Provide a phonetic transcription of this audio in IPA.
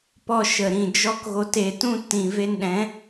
pɔ˧ ʃə˨ɾĩ˨d͡ʒɔ˧k ɣo˨te˨tũ˧ tĩ˨ve˧nɗɛ̃˨˦

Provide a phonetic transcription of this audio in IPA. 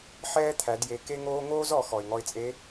ħɛː˥t̪ʰæ˩˧dje˩˧ ke˥ŋoː˥ ŋoː˥zɔ˩˧ xɔ˩ɪ̯ŋɔ˧ɪ̯t͡sʼe˧˥

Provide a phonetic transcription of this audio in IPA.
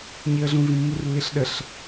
ɲiə̯ɮũvĩ mːurlːiɬɗəɬ

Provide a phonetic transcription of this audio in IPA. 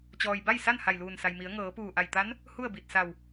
t͡ɕɔː˩jba˥˨jsa˥˨n ha˧˩jluː˧˩nsa˩jmi˩˧ə̯ ŋɤː˩˧puː˧˩ʔa˧˩j t̪a˧˥n | hu˥˨ə̯bi˧˩t̚sa˧˩w

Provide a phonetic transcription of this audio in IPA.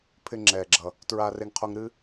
pʰɪ˧ŋ͡ǁɛː˩ɡ͡ǁʌ˩ | tɹaː˧re˧ŋqʰo˧ŋ ɾɨ˧

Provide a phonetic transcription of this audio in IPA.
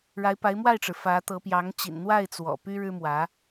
ɻa˧˥ɪ̯pa˧˥ɪ̯mwa˥˩ɪ̯ʈ͡ʂɻ̩˩ fä˧˥ t̪ɤ˧˥pjɑ˧˥ŋ t͡ɕḭ˨˩nn̪wa˥˩ɪ̯ t͡swɔ̰˨˩py˥ ɻɻ̩˥mwä˧˥

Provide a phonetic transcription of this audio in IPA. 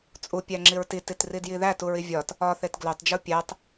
t͡sʼupʲæŋ͡ǁiɹ tititridji ðætuɹi vʲɒt | ɒθet ɡlotˤd͡ʒu pʲætˤ

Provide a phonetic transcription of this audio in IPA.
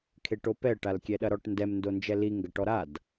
kʰeʈopɛə̯ ʈalkʲɛɗɐɾɔʈ ndɛm ndond͡ʒɛli ŋɡɐʈɔɾad

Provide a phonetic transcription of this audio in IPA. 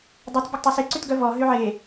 dˤœt bʲɔɡtˤuse ǀytɡœvɔ ɦyʕe

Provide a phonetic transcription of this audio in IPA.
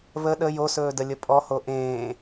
βə ɗə josɵːdəlʲə pʼɔho ʔẽː

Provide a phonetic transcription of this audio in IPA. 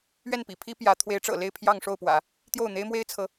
ɥɛ˥˩npḭ˨˩pʰi˥ pjä˧˥ t̪ʰwe˧˥ɪ̯ʈ͡ʂɤ̰˨˩le˥˧ɪ̯ pʰjɑ˥˧ŋʂo˥˩ʊ̯pwä̰˨˩˦ | t̪jo˥˩ʊ̯n̪e˥ɪ̯mwe˥ɪ̯t͡sʰɤ˧˥

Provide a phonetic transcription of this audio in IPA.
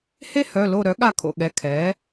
he˥hœ˩˧˩lo˦˨ ɾœ˩˥ɠa˦˨kʰo̰˦˨ ɠɛ˩˧˩kʰɛː˩˥

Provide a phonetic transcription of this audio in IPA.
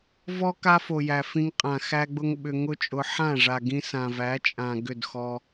vɔ˦ ka˦fo˨jæ˨ fĩ˧ŋqʼã˨ xæ˦ɡ͡bʊ˦ŋ ɓʏ˧ŋʊ˦t͡ʃʼʊ˧ ħã˦˨ʐa˨ɡĩ˧sã˨ væ˨˦t͡ʃʼã˨ ɡʏ˦˨dxɔ˧

